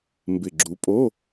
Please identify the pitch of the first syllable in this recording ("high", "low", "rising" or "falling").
low